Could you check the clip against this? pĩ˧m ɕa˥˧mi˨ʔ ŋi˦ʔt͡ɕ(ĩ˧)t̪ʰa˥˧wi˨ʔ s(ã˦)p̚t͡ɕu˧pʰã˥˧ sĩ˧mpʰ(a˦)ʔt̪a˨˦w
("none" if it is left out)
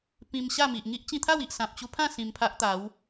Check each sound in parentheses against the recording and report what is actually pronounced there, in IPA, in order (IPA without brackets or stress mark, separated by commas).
ĩ˧, ã˨, a˦